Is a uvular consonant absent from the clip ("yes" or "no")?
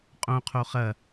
no